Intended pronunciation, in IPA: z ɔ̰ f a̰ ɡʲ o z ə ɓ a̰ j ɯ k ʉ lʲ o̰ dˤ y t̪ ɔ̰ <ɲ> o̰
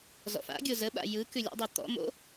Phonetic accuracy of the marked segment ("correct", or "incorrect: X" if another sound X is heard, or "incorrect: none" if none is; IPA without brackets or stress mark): incorrect: m